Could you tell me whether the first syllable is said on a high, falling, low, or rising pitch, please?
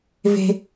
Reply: low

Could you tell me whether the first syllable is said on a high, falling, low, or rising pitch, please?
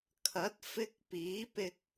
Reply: rising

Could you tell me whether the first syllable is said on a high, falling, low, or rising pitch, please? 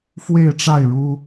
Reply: falling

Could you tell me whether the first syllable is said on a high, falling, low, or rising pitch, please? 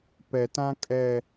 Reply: low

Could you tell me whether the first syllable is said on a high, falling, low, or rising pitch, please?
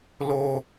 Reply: high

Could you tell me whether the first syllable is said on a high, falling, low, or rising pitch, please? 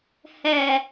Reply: low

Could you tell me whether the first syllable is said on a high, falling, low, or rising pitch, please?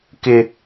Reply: high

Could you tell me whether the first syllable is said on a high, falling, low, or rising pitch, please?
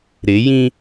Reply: rising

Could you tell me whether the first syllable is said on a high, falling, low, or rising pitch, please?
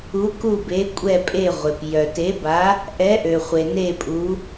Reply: rising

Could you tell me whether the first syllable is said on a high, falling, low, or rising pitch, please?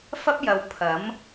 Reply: high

